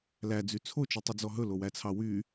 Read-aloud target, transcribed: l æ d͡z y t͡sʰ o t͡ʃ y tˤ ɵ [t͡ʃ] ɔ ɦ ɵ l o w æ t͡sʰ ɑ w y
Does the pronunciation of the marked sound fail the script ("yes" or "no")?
yes